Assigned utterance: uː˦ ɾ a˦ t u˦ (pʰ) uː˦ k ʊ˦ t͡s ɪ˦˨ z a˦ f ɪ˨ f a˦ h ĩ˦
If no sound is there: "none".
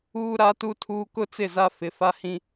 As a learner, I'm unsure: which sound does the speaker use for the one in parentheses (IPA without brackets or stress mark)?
tʰ